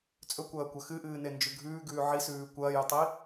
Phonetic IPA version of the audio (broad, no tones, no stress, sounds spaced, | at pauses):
t͡sʼ ɵ kʷ ɐː kʷ ɐ x ɨ ʔ ɨː n e n d͡ʒ ʉ ɡʱ ʉː ɡ ʉː ʕ i s ʉː kʷ ɐː j ɵ tˤ i